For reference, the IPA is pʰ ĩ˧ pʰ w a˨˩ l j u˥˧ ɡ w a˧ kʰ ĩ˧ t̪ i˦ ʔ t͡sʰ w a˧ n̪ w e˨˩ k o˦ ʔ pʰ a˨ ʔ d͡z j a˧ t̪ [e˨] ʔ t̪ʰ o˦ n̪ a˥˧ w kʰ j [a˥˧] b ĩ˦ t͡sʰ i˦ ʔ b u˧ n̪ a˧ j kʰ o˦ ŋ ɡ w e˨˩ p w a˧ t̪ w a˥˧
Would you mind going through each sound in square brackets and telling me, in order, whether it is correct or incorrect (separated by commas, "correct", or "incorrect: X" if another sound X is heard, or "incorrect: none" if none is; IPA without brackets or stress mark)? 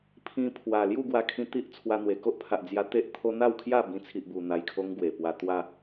incorrect: e˦, correct